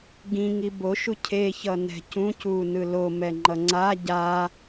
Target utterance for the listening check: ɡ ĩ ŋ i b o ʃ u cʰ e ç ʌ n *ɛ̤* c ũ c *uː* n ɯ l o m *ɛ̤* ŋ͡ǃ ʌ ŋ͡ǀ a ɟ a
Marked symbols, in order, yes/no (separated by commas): yes, yes, no